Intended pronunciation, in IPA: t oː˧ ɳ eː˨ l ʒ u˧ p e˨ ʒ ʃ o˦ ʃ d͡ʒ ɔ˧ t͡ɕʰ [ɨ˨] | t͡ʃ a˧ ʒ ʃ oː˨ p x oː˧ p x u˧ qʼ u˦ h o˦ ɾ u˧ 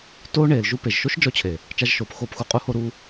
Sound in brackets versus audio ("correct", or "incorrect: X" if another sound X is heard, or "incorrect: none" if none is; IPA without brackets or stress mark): incorrect: e˨